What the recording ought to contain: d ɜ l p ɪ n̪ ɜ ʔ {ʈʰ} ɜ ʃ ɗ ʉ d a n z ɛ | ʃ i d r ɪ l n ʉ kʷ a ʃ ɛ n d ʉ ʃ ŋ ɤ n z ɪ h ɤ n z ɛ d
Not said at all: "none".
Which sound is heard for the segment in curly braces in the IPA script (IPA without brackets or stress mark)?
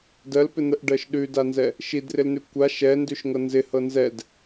ɖ